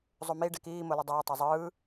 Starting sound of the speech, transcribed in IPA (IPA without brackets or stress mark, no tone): zˤ